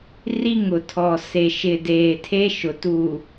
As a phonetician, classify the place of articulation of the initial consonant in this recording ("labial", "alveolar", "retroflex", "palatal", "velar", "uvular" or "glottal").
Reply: alveolar